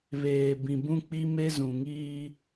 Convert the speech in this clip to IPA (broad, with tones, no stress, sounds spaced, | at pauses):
β eː˨ b ĩ˨ b ũ˦ k͡p i˦ m e˦ z ũ˨ ŋ iː˦